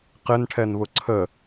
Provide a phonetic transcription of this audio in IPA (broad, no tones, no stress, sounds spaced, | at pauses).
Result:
q ɪ n ʈʰ ɛ n β ʊ ǀʰ ə